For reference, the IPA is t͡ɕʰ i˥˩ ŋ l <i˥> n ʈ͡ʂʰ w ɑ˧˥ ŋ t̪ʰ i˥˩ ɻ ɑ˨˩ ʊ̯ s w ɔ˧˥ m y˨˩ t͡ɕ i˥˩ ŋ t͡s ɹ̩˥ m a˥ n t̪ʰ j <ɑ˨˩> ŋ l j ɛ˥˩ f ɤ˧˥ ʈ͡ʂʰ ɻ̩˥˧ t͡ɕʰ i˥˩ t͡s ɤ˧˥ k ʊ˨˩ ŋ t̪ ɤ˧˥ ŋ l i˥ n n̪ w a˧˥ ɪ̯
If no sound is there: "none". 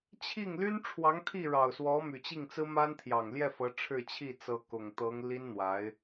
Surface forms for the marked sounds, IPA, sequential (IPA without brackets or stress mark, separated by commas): y˥, ɑ˨˩